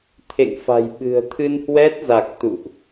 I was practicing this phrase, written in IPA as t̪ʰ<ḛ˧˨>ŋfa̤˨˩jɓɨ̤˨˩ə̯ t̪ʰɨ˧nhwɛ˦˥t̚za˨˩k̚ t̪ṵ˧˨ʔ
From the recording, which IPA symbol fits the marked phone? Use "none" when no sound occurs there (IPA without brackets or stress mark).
ḛ˧˨